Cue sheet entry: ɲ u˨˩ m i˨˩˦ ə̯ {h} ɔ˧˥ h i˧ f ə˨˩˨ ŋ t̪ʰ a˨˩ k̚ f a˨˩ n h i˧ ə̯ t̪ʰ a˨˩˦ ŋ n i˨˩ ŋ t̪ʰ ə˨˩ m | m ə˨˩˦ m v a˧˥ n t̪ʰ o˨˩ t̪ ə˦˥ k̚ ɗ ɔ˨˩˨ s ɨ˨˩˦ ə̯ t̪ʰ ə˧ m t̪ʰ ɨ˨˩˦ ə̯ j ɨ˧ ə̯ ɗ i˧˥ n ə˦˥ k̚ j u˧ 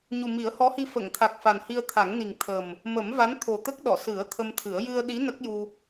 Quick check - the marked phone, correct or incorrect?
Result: correct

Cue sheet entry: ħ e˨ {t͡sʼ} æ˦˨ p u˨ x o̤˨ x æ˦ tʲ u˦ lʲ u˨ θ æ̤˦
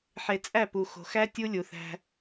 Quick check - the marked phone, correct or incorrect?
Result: correct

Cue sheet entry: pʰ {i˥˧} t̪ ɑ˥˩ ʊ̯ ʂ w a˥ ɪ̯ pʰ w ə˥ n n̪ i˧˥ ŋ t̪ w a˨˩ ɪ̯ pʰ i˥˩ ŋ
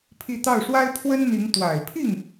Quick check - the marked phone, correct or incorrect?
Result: correct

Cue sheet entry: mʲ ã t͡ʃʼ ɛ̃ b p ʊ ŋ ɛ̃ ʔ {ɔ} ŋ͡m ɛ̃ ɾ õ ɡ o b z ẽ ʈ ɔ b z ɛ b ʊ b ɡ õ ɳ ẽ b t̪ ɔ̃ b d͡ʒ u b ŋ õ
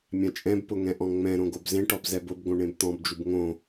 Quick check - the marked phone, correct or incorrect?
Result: incorrect: ɔ̃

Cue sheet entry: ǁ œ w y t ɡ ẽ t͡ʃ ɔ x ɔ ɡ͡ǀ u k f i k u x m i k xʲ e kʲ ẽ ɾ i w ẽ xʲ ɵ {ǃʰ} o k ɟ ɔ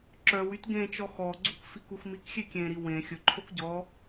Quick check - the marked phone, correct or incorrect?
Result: correct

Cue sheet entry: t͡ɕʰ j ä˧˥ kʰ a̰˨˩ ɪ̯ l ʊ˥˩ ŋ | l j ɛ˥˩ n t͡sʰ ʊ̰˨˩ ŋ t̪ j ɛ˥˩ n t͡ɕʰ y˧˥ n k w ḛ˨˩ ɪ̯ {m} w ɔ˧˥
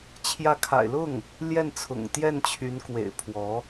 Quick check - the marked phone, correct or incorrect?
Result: incorrect: pʰ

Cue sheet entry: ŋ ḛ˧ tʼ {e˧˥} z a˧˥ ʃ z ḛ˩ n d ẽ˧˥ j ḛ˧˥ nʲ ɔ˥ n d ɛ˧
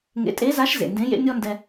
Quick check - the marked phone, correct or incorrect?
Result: correct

